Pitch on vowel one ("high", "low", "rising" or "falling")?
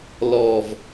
low